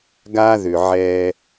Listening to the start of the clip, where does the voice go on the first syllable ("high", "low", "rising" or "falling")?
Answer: high